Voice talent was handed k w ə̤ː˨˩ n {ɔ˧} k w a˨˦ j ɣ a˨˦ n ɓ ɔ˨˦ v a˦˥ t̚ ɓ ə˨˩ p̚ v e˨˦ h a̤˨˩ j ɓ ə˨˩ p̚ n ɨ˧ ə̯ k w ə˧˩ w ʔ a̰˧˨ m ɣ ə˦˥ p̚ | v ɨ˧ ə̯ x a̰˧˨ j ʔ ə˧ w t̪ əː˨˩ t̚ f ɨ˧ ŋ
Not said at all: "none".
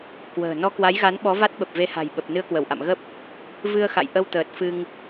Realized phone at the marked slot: ɔ˧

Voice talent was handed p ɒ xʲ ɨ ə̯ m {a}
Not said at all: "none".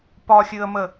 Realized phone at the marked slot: ə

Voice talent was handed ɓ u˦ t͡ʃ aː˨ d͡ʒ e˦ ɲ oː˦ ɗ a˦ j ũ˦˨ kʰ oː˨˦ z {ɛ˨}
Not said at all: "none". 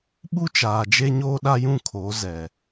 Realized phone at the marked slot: ɛ˨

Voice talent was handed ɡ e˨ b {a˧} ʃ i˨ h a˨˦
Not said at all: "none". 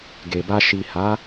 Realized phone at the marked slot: a˧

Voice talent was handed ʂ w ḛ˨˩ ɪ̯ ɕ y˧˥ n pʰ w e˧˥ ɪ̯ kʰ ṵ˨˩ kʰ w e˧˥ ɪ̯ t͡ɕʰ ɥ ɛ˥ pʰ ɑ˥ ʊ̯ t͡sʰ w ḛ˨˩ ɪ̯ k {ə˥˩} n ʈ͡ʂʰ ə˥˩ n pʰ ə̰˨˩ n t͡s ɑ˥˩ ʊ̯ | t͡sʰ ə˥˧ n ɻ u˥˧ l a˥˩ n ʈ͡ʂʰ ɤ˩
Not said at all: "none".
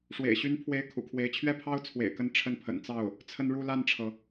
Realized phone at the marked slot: ə˧˥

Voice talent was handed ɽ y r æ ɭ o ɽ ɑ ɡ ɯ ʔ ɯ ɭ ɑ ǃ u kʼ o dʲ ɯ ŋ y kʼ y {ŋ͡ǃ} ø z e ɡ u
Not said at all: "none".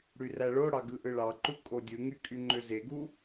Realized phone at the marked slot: ŋ͡ǃ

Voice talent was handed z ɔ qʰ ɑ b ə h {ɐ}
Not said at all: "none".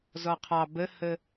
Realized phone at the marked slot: ə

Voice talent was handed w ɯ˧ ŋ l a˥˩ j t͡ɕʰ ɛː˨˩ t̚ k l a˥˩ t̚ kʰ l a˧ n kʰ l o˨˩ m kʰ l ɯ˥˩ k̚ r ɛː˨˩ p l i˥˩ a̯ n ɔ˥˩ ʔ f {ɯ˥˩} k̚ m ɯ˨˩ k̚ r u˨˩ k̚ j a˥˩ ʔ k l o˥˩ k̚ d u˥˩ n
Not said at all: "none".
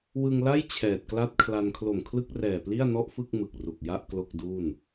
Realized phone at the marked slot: ɯ˥˩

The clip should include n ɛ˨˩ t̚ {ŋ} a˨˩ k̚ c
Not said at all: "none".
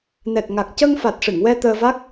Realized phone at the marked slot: ŋ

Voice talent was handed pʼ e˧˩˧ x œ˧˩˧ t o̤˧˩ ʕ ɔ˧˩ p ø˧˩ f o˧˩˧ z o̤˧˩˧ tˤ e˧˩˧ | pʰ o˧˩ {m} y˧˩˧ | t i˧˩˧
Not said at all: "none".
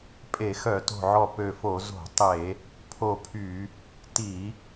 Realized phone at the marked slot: pʰ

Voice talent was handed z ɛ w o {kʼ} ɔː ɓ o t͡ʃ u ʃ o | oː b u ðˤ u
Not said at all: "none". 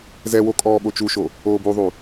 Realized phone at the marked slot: kʼ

